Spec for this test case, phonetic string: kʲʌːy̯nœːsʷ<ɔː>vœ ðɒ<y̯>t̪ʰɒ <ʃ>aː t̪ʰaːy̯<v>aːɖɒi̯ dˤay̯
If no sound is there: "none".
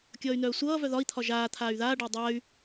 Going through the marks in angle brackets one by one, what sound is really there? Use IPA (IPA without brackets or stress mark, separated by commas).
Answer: ʌː, i̯, ʒ, ð